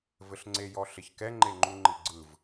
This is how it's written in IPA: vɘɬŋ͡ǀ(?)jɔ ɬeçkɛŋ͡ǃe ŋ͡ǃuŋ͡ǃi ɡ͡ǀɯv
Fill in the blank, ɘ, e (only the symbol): e